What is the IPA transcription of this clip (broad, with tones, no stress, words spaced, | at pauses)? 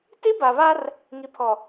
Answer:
ti˦ba˨βa˦r | ŋi˨pʰɔ˨